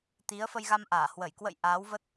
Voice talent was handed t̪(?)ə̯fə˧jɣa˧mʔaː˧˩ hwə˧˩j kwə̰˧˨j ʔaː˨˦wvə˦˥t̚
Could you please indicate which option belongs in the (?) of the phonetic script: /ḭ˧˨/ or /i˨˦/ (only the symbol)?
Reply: i˨˦